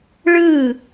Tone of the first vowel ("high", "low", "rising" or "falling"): falling